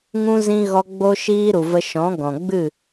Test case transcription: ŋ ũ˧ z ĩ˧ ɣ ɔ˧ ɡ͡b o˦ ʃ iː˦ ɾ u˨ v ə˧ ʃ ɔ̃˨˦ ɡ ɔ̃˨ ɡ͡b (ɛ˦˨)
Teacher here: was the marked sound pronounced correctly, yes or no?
no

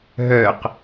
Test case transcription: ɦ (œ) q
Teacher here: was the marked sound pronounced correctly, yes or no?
yes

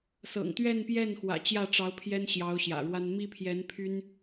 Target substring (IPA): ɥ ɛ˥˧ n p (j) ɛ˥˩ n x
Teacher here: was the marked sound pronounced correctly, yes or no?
yes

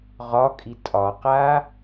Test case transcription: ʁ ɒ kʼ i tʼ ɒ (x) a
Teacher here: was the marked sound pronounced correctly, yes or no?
no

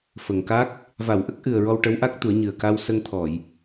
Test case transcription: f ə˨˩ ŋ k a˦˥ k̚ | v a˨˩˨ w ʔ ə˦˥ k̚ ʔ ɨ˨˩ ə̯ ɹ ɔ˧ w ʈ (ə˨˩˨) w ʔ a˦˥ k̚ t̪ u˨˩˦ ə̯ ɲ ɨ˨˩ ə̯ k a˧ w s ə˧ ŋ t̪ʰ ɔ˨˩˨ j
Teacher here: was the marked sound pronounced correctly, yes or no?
no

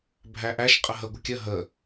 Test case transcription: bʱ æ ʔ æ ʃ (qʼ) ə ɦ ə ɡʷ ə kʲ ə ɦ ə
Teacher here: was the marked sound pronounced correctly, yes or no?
yes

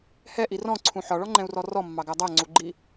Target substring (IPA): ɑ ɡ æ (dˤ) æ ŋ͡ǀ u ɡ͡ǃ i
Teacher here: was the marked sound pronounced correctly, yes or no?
yes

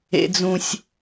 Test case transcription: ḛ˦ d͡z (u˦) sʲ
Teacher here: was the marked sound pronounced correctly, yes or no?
no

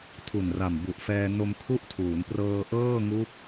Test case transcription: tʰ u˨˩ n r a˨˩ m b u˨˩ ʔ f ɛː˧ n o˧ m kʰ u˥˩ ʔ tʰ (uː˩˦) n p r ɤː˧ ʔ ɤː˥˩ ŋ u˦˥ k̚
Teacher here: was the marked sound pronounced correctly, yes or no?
yes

